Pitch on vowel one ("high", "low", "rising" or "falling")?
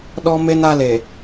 high